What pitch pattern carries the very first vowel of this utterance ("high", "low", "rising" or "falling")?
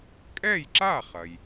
falling